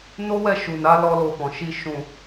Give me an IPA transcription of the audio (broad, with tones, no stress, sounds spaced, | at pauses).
n o˦ w ɛ˦˨ ʃ u˨ n a˨˦ l ɔ˦ l o˧ f ɔ̃˨ ʃ i˧ ʃ ũ˨